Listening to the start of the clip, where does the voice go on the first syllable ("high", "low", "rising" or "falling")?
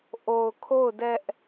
low